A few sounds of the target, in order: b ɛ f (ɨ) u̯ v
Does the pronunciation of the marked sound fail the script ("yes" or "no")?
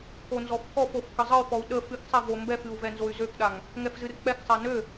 no